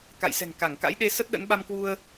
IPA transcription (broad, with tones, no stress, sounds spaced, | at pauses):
k a̰˧˨ j s ɛ̤˨˩ ŋ k a˧˩ ŋ k a̰˧˥ j ɗ e˨˦ s ə˦˥ t̚ ɗ ə̰˧˥ n ɓ a˧ m k w u˧ ə̯